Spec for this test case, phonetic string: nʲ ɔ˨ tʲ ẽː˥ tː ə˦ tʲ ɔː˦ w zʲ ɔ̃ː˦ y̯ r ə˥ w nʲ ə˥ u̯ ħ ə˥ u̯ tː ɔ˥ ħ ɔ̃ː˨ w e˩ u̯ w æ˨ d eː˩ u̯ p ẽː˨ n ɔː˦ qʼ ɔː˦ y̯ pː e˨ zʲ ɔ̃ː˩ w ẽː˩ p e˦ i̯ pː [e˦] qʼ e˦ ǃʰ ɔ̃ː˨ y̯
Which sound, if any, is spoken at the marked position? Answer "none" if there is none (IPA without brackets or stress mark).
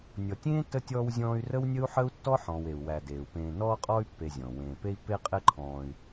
e˦